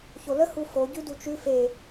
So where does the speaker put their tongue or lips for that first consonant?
palate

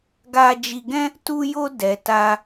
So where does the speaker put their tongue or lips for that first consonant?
velum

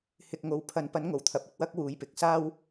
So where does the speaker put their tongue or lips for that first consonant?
throat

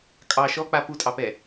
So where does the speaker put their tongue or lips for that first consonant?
velum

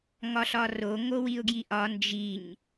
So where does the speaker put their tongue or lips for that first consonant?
velum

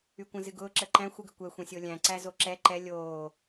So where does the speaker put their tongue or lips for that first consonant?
velum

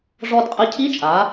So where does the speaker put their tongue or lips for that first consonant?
retroflex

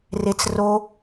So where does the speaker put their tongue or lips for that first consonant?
tongue tip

